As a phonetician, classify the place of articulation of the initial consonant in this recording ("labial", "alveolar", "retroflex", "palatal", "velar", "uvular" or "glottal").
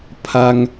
labial